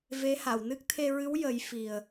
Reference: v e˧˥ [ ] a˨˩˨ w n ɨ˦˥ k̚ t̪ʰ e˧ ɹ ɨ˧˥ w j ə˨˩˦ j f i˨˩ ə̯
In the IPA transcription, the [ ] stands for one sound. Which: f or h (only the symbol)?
h